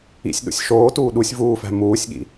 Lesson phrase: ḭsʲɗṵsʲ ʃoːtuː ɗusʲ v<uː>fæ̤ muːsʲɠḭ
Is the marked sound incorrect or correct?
correct